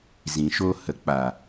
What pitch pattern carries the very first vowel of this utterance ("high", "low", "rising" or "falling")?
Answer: low